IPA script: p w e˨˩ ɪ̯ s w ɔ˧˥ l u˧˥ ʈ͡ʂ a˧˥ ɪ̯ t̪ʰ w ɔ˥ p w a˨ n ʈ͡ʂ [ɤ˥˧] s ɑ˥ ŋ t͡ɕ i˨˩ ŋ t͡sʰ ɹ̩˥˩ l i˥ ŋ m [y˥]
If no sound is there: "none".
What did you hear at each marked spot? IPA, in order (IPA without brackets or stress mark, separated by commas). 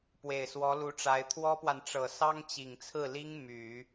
ɤ˨˩, y˨˩˦